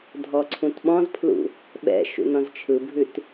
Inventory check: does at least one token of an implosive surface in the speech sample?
yes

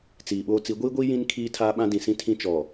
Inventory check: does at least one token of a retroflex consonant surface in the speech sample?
no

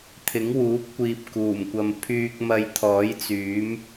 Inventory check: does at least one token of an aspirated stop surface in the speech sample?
yes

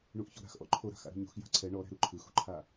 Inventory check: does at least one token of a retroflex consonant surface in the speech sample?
yes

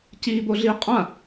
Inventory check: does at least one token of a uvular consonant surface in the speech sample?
yes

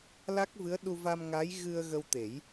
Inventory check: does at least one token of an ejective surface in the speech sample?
no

